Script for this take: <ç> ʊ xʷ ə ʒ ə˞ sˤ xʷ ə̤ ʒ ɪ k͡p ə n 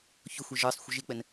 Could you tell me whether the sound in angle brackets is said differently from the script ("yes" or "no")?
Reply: no